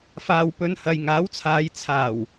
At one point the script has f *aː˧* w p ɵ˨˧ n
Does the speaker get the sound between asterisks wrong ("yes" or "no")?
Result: yes